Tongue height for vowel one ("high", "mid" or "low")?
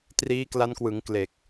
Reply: high